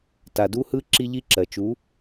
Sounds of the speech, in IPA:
t a˨ d u˦ h ɯ˦ ǁ i˦ ʎ i˦ ǁ ɜ˨ t͡ʃ u˨˦

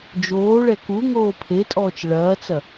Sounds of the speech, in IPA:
d͡ʒ oː ɭ ɛ k u ŋ oː pʰ e tʼ ɔː t͡ʃ ɭ ɐː t͡s ɐ

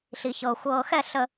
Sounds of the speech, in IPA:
ɬ i˨ ç ɤː˨ xʷ ɤː˨ x ɛ˦˨ ɬ ə˨

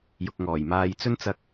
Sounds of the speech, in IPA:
j ʊ˨ k̚ ŋ ɔː˨˩ j m aː˧ j t͡s ɵ˥ n t͡s ɐ˧ k̚

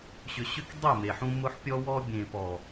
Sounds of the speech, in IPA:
ɕ ʏ˧ ɕ ʏ˦ k dˤ e˦˨ m e˨ ħ ũ˧ m ʊ˧ ħ pʲ ɔ˧ w ɔ˧ bʲ ẽ˨ p ɔ˨

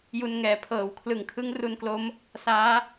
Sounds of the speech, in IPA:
j u˧ n ŋ ɛː˨˩ pʰ ɤː˩˦ w kʰ l ɯ˨˩ ŋ kʰ ɯ˦˥ ŋ r u˧ n k l o˦˥ m | s aː˦˥

